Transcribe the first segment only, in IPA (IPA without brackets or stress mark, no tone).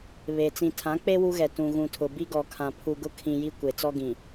β